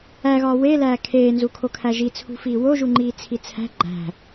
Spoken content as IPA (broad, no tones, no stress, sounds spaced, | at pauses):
æ ɣ ɒː w e l æː kʰ eː n z u kʰ o kʰ æ ʒ i t͡sʰ ṳ f iː w o ʒ u ŋ͡ǃ iː t͡sʰ i t͡sʰ æ̤ ɡ͡ǃ æ̤